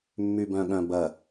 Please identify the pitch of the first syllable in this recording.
low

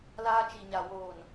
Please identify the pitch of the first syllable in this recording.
high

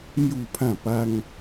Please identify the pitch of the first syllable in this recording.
falling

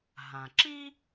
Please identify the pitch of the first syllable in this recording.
low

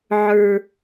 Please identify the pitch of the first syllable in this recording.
low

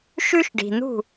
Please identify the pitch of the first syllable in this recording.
high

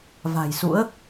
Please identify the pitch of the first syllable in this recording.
low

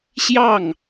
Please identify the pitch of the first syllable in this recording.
falling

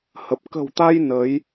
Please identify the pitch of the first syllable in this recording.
low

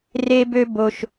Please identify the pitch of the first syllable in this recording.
high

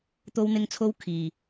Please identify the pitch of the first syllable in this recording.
high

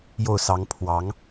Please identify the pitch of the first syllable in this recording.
falling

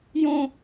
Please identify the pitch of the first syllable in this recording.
high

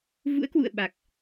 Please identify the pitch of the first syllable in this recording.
rising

